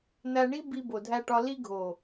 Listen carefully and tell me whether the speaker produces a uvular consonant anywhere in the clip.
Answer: no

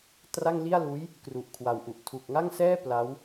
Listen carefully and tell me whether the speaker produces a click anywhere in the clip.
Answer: no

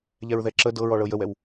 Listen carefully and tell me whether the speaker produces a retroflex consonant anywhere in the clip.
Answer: yes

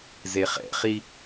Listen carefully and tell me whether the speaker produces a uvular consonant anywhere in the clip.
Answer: yes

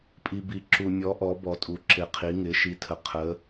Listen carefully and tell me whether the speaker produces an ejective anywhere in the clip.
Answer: yes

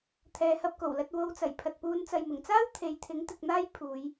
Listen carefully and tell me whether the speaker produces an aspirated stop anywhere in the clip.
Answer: yes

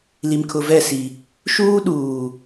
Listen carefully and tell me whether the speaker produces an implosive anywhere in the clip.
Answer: yes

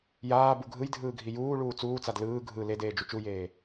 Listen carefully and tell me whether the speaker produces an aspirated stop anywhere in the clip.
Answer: no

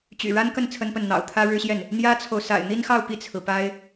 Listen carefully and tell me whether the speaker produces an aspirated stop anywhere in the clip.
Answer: yes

